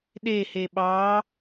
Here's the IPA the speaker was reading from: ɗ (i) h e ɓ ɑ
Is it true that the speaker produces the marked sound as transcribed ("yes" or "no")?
no